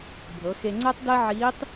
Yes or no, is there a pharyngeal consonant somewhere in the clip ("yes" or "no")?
yes